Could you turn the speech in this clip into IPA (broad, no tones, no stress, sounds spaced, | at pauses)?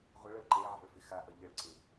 ʁʷ ʌ ɭ ʌ ɭ ǃ e ʕ a̤ ɭ f ɪ x a ʔ ʌ ʎ ə ɭ ǀ ɪ